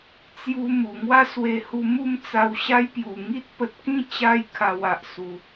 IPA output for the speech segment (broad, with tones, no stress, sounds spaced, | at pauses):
t͡s j u˧ m u˨˩ ŋ w a˦ s w e˧ h u˧ m u˥˧ m t͡s a˧ w ɕ a˦ j p j u˨˩ ŋ i˦ t̚ p ə˨ t̚ k ĩ˥˧ t͡ɕ a˧ j kʰ a˧ w a˨ ʔ s u˨˩